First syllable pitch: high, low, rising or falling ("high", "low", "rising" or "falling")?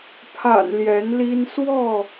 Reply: low